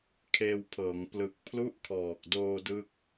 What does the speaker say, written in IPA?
kʰ eː˧ w pʰ ɤː˩˦ ŋ p l ɯ˨˩ k̚ pʰ l u˦˥ ʔ kʰ ɔː˨˩ k̚ d oː˧ d ɯ˥˩ k̚

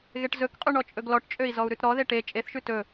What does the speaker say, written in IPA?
ɣ e ʈ z ɵ k qʼ ʉ ɳ ɔ t͡ʃʼ ɵ ɡ l ɔ ʈ t͡ʃʼ ø i̯ z ɔ u̯ ɾ ʉ t ɾ ɔ ð e ʈ e t͡ʃʼ e θ ʃ ʉ t ɵ

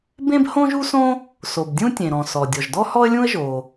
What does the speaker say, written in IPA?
b ẽ˥ b h õ˥ ʒ u˥ s õ˥ | s o˩ b dʲ ũ˥ tʲ ẽ˩ ɾ ɔ̃˩ s ɔ˩ dʲ ɔ˩ ʒ d ɔ˥ h ɔ˥ ə̯ lʲ ũ˥ ə̯ ʒ o˩

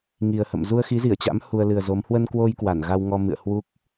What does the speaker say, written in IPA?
ŋ i˨˩ ə̯ h ə̰˧˨ m z u˧ ə̯ x i˨˦ z i˧˩ ə̯ t͡ɕ a̰˧˥ m h u˧ ə̯ l ɨ˨˩ ə̯ z o˨˦ m h w ə˧ n k w o˧ j k w a˧˩ n ɣ a˧ w ŋ ɔ˧ m ɨ̰˧˨ ə̯ h w u˦˥ k̚

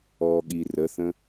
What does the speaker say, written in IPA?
ɔ ɠ i r ə θ ə̃

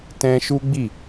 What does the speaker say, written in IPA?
t ɛ̃˦ ʃ u˦ ɡ͡b i˦˨

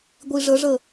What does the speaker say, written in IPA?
ɡʷ i ʐ ə ʐ ə

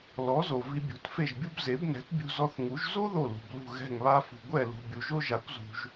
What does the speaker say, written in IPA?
l ɔ˩˥ z o˩ v i˧ bʲ ṳ˩˥ t f e˥˩ ʒ bʲ u˥ b z e˩˥ b n ɛ̤˩˥ t bʲ ṳ˧ z ɔ˧ θ ŋ u˩˥ ʒ z o˥ ð o˥˩ l ṳ˩ b l ṳ˥˩ ɣ ɛ̤˥˩ ŋ β a˥ f ṳ˩ ɡʷ ɛ˥˩ l ṳ˩ bʲ u˩ ʒ o˥ ʒ a˩˥ kʷ z ṳ˩ ʒ

